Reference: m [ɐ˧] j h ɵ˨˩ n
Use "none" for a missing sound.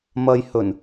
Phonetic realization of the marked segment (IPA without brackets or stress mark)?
ɐ˧